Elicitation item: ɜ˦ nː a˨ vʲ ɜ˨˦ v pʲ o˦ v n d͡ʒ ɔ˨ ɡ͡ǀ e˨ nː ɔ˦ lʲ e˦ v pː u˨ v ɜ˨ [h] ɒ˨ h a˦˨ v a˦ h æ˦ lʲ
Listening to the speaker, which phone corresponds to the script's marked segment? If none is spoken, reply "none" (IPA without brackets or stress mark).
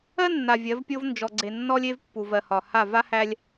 h